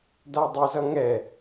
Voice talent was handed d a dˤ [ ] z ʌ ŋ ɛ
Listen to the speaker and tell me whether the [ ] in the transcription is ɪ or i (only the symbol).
ɪ